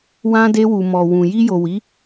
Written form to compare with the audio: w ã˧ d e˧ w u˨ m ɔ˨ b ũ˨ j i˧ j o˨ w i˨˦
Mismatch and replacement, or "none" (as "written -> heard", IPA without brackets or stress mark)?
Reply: b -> w